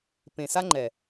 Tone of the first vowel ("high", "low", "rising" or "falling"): low